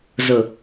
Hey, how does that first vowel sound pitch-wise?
low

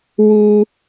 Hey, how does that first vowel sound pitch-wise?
low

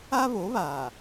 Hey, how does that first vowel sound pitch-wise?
high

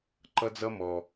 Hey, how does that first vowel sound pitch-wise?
high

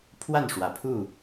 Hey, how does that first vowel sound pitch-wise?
falling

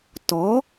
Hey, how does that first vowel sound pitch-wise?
rising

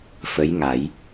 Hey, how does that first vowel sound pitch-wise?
rising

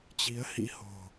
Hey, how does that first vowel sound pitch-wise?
rising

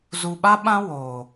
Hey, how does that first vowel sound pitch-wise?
low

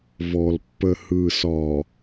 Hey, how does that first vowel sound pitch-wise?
low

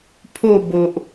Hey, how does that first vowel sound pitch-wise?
falling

